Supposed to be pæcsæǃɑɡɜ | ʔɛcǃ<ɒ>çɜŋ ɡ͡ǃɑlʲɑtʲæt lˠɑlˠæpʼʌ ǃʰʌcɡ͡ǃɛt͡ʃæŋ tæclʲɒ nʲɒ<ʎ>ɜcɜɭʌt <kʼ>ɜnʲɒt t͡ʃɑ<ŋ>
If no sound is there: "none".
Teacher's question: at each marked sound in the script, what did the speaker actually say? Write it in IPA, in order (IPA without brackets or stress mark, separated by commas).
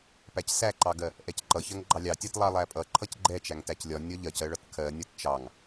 ʌ, ʎ, kʰ, ŋ